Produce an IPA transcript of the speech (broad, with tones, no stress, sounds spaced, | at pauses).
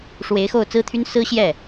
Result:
ʂ w e˧˥ ɪ̯ x o˥˩ ʊ̯ t͡s ɹ̩˥ t̪ʰ y˥ n s ɹ̩˥ ɕ j ɛ˥˩